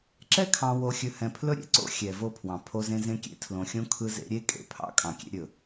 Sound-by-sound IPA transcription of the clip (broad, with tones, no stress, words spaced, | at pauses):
ǁɛ˦kʰɑ̃˨wo˨xʲɵ˨ hɛ̃˨pʰlɵ˦ɾʲḛ˨ǀo̰˦ xʲɛ˨vo˦pʰwɑ̃˨ pʰo˦zẽ˦zẽ˦ kʲḛ˦tʰlõ˨xʲõ˦ kʰɯ˦zḛ˦ ɾʲe˦ kʼḛ˦ pʰɑ̰˦ kʼɑ̃˨kʲḛ˦ɾʲɵ˨